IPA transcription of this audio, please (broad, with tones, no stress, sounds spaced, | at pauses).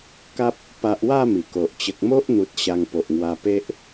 k a˦ p̚ | p a˨ ʔ w a˧ m i˨˩ k o˨ ʔ t͡ɕ ə˨ k̚ m o˦ ʔ n̪ u˨ t̚ ɕ a˧ ŋ p o˨ ʔ ŋ w a˧ p e˦ ʔ